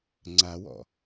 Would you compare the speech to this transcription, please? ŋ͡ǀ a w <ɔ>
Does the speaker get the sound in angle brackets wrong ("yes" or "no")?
yes